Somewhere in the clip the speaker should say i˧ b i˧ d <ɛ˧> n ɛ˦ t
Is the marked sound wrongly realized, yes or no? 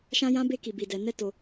no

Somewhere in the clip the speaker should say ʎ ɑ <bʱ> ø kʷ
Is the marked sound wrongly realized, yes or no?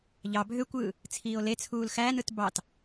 no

